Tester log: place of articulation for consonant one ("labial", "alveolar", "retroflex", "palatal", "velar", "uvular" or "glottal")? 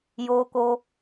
palatal